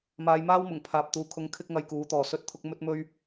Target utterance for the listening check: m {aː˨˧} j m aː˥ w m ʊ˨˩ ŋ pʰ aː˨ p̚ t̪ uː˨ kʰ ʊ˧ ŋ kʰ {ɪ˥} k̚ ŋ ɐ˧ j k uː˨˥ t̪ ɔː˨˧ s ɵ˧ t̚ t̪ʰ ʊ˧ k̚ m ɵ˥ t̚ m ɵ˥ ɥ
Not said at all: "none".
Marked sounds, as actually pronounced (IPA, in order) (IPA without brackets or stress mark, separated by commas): aː˨˧, ɪ˥